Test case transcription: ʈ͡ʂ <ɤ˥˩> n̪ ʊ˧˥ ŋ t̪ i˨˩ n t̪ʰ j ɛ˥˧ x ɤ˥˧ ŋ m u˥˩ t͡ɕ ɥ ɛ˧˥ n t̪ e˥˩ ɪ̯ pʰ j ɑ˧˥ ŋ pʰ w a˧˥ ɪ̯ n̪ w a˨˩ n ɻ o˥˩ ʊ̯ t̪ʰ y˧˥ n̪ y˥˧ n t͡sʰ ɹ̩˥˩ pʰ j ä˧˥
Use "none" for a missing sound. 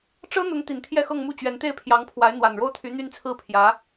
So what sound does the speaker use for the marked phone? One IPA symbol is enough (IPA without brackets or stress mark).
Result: ɤ˥